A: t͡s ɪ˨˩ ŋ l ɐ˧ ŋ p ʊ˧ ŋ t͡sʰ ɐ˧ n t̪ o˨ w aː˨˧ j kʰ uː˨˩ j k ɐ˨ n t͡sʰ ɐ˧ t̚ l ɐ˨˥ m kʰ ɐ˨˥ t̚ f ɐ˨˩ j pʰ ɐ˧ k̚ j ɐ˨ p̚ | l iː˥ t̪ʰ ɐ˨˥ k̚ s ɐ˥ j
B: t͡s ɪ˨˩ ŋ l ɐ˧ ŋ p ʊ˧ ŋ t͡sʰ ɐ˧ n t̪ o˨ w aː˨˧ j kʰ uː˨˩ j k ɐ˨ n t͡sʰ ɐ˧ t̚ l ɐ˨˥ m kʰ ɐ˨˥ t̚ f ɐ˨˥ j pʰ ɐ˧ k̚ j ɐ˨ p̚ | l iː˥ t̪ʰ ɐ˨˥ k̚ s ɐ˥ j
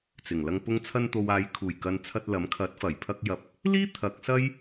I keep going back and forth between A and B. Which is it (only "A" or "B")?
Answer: A